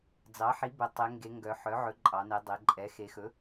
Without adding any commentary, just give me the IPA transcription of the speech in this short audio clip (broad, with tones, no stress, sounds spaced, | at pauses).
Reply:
d͡z ɑ˩˥ ħ i˩˥ b ɵ˩˧ tˤ e˩˧ ŋ ɡ e˩˧ ŋ ɡ œ˩˧ ħ œ˩˥ ʕ ɵ˩˥ ǃʼ ɑ˩˧ n e˩˧ dˤ e˩˧ ǃʼ ɛ˩˥ x e˩˧ x ɵ˩˥